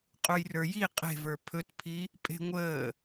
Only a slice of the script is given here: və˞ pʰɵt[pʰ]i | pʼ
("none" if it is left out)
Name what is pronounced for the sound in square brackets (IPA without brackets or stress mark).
pʰ